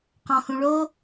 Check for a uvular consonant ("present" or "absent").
present